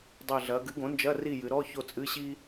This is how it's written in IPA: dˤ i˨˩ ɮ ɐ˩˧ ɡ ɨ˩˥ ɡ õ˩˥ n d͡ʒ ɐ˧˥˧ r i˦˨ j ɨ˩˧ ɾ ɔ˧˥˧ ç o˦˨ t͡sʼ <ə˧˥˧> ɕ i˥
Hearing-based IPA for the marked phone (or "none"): ɨ˧˥˧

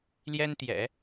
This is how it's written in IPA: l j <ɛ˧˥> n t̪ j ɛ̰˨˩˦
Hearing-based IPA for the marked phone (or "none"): ɛ˥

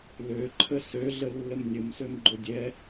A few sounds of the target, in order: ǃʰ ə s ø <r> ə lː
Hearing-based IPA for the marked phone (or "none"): ɮ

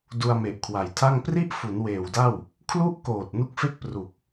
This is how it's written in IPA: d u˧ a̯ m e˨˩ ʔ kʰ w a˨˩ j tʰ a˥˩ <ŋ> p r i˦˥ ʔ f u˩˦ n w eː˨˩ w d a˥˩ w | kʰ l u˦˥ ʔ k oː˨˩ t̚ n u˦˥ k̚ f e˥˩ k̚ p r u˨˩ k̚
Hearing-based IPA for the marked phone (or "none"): ŋ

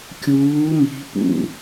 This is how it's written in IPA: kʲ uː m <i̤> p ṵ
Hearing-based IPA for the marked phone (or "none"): i̤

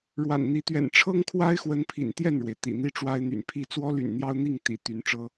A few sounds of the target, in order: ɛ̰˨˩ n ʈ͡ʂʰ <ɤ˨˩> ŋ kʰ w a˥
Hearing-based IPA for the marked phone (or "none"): ɤ˥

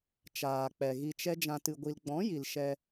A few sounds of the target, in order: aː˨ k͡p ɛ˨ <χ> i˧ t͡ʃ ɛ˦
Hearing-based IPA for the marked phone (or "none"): ɣ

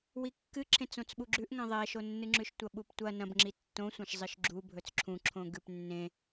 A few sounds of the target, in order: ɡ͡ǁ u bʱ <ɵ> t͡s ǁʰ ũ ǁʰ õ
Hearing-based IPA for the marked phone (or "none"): ɵ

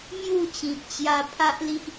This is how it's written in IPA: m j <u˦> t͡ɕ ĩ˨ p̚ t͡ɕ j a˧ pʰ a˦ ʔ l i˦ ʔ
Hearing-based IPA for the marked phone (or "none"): u˥˧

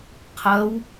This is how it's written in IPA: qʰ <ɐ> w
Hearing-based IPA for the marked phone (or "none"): ɐ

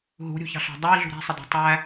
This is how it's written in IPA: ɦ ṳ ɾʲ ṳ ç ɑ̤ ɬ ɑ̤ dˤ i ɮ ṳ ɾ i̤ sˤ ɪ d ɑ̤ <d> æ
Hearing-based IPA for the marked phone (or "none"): tˤ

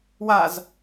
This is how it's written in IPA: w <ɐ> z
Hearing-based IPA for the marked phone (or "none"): a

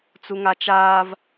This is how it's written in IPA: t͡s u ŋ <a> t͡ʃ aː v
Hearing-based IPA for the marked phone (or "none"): a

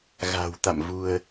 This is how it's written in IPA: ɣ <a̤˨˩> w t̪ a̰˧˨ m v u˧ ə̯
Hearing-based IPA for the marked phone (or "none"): a̤˨˩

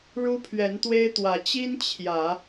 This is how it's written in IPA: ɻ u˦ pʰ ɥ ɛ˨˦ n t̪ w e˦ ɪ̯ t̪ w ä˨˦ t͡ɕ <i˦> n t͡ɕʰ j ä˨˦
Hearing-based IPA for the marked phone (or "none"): i˦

